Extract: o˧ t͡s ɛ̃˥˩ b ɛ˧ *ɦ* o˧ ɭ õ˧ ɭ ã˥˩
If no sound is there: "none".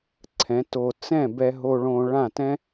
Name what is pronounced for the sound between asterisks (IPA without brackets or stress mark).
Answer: ɦ